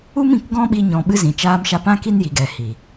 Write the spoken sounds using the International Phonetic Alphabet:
u˦ m ĩ˨ k ɡ ɔ̃˦ ɓ i˧ ɲ ɔ̃˨ ɓ ɨ˧ z ĩ˨ t͡ʃ aː˧ m ʃ a˧ p ã˦ k i˦ n j i˨ ɡ ɛ˨ h i˨

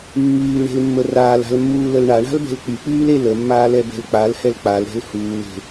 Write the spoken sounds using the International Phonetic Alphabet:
mː yː l ɳ e̤ l mː ə r aː l a̤ l mː uː l ə l ɳ a ɳ a̤ l b ɛ̤ l k͡p y k͡p yː l e l ə mː aː l ɛ b ɛ̤ l k͡p a l h ɛ l k͡p a l ɾ ɛ̤ l h uː l e̤

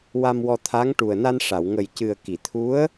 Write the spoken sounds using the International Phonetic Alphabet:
w a˧ m w ɔ˧ t̪ʰ a˧˥ ŋ ʈ u˨˩ ə̯ n a˧ n ʂ a˨˩˨ w ŋ ə˨˩ j c ɨ˨˩ ə̯ k i˨˩˨ t̪ʰ u˧˥ ə̯

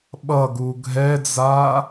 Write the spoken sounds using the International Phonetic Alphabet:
ɓ ʌ ɡ u ɡʱ ɛ d͡z a

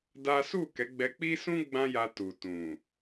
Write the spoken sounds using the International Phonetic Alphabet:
d a˦ s u˦˨ k ɛ˨˦ ɡ͡b ɛ˧ k͡p i˦ s ũ˦ ɡ͡b ã˦ j a˧ t u˨ t ũ˨

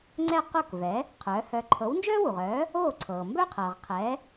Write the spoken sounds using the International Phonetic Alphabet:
ŋ͡ǀ ɛ˥˩ q o˥˩ k v ɛ˩˥ | qʰ œː˩˥ h œ˧ ǃʰ ɤ˩˥ w n d͡ʒ œː˥ w u˩ ʁ œː˩˥ | oː˥˩ ǀʰ ɤː˩ m b œ˥ qʰ ɤː˩ ʁ qʰ ɛ˩˥

